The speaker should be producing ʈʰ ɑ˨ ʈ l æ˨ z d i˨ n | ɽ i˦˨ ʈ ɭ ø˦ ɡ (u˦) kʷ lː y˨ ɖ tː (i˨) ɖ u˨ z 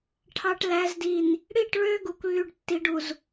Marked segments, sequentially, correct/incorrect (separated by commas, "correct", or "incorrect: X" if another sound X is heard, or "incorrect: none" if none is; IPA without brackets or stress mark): incorrect: u˨, correct